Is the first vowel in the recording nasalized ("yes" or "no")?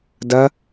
no